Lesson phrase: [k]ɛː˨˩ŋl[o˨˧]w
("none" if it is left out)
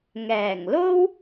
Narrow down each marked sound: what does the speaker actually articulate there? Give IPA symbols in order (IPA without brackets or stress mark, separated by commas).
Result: ŋ, o˥